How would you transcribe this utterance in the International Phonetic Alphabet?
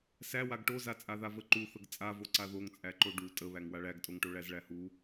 sæwaɡ ʈozat͡sʼaða vəǃuθəɡ t͡sʼavoǀa ðoŋt͡sʼæǃo ɖu tʼəβæŋ waɭæɡtʼoŋʈo ɭæzɭæhu

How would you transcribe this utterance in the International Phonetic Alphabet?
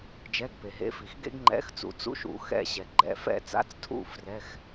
d͡ʒɛ˧˥˧ɡpe˨ɦḛ˧˥fi˨x ɡḛ˥ɡŋ͡ǃɛ̰˧˥˧xt͡sṵ˨ t͡sṵ˥ʃṵ˨˩˦ xɛ̰˦˨ɕɛ˨ ɡ͡ǃɛ̰˨fɛ̰˦˨t͡sa̰˧˥˧t͡stʰṵ˦˨ frɛ˧˥˧x

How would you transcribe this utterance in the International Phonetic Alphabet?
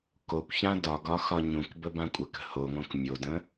kokʷçã dɒɡɒ xɒɲũkbə bãkʷʼəkə̤ hoŋõk mʲodə̃

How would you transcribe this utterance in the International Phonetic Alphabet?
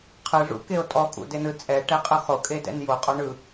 qʰɯʐṵkeo̯ tʼɔkʼṵdenɯ t͡sʼɛʈɛqʼɯ χokʼedɛ̰n joqʼɔ ɳɯ

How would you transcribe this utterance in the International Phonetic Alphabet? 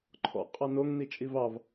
ǃʰɔ̰ qʼɑnoŋ nit͡ʃʼivɑv

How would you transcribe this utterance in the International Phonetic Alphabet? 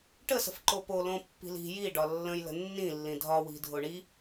ʈəsə̤f ǃopo lõpːi̤li̤ jiɖɒ lːə̃j lə̤nːĩlːĩ dʱɒwi̤ dʱoɳi

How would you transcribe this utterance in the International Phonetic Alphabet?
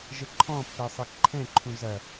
ʒəǃʰɔ̃pːɛ sˤekǃʰɛ̃ǃʰũ zɐ

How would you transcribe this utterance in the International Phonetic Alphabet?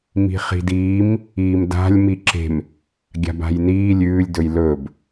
mi̤χi̤diːm | iːmda̤lʲ miǁe̤m | ɡʲa̤ba̤jniː lʲʉːlʲ dɵjlɵːb

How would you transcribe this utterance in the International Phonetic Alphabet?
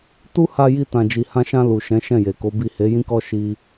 tu˦ha˧ji˧ tã˨d͡ʒi˨hã˧ʃã˧ lu˨ʃɛ̃˨˦ ʃɛ̃˦˨je˨ko˨˦bi˦˨ he˨˦jĩ˦kɔ˦ ʃi˧

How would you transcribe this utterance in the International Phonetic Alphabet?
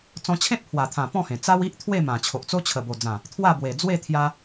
t͡sɔ̃˧t͡ɕʰẽ˦t̚pʰwa˨˩t̪ʰã˨˩ pɔ̃˥˧hẽ˨˩ t͡sa˦wi˦ʔt̪ʰwe˥˧ mã˨˩t͡ɕʰo˨ʔt͡so˦ t͡ɕʰə˨˩bo˨˩d͡zã˨˩ | t̪ʰwa˥˧bwe˨˩d͡zwe˥˧ t̪ʰja˧

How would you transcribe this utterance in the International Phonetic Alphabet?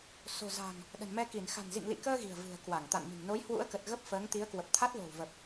so̤˨˩za̤˨˩ŋ | ɗə̤˨˩nmɛ˧ki˧˩n xa̤˨˩nzḭ˧˨ŋlḭ˧˨kəː˧ ɣi̤˨˩ə̯vɨ̤˨˩ə̯kwa˧˩ŋ t̪a̰˧˨nmi̤˨˩ŋ no˨˦jhwṵ˧˥ə̯kə˨˩t̚ ɣə˦˥p̚fəː˨˦ŋt̪i˨˦ə̯kwə˨˩p̚ t̪ʰa˦˥t̚lo̤˨˩wvə˨˩p̚

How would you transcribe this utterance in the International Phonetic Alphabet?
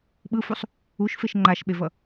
ɓɯfusˤ | uʃfeʃ ŋ͡ǃaʃɓevʌ

